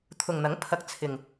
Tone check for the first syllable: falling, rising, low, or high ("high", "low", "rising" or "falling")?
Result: low